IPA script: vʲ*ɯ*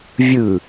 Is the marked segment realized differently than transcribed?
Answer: no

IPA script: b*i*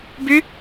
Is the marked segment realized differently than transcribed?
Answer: yes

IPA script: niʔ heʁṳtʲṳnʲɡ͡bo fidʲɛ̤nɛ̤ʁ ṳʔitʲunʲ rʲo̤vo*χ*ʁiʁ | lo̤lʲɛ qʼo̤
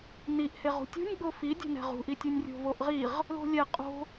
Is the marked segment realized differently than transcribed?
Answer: yes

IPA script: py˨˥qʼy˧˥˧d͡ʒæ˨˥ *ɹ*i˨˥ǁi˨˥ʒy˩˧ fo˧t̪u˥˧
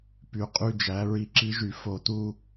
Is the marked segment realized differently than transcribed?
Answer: no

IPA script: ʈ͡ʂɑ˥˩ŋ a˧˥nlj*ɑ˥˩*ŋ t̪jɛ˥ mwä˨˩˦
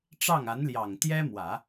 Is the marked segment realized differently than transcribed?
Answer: yes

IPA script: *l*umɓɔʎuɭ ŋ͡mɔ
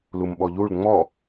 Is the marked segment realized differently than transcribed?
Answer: no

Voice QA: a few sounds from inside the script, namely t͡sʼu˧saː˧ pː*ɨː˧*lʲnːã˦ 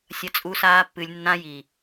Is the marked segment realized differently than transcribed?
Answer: yes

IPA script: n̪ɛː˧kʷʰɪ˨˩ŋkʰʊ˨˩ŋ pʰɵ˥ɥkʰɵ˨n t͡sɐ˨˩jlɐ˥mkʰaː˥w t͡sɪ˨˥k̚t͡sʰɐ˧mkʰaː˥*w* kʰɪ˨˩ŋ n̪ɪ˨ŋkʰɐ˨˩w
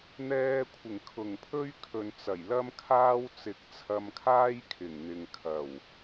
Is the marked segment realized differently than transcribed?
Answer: yes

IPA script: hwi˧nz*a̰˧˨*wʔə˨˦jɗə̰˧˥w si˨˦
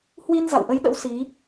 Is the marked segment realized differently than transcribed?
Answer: no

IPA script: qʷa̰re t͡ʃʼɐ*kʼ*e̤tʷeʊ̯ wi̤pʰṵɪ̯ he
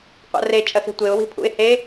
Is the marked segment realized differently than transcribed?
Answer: yes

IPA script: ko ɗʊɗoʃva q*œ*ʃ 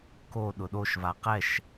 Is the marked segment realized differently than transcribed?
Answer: yes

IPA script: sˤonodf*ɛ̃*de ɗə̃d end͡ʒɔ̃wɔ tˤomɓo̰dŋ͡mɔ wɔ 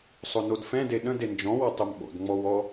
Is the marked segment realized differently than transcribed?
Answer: no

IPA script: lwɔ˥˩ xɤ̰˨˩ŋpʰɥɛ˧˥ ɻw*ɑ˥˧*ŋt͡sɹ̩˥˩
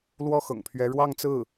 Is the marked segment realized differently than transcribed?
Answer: no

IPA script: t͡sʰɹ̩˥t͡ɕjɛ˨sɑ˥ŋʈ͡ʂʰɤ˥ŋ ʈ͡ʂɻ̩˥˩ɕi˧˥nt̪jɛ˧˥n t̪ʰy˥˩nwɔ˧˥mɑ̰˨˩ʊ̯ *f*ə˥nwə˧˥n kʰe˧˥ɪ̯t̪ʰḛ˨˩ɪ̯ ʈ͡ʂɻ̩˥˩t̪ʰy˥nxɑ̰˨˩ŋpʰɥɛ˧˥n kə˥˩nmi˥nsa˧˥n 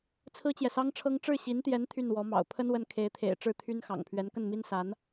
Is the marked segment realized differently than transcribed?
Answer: yes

